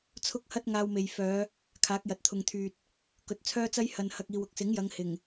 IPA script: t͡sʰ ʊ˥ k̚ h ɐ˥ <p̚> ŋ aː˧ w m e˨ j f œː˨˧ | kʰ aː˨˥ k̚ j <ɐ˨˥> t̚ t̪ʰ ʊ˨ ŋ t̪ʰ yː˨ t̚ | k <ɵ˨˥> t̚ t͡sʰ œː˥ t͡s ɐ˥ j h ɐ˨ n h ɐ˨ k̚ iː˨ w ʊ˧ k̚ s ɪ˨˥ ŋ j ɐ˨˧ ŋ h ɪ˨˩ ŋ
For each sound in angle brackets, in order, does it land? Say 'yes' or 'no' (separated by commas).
no, no, yes